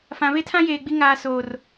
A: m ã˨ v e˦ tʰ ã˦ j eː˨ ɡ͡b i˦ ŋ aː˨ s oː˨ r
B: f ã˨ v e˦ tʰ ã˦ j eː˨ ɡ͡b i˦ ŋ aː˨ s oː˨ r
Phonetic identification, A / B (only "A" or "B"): B